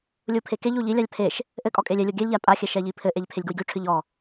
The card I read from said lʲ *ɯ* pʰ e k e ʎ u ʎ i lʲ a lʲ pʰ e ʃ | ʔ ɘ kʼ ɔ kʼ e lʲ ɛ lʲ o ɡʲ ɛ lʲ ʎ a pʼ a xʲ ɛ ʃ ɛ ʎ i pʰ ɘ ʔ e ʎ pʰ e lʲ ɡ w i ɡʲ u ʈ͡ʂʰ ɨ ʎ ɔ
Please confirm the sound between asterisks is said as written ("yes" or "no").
no